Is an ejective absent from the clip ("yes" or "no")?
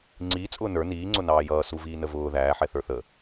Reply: no